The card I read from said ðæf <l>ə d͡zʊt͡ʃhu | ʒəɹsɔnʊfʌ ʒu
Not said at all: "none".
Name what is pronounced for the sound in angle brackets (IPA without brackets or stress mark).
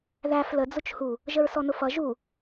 l